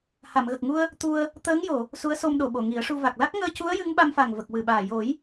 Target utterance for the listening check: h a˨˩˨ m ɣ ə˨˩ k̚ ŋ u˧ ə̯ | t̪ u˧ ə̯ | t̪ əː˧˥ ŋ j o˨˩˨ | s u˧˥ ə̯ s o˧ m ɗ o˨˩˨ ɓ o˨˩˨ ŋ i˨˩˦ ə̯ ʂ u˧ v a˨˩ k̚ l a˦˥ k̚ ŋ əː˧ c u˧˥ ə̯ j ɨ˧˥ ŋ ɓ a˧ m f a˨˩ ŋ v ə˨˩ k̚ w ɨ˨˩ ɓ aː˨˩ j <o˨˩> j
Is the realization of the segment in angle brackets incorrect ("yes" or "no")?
yes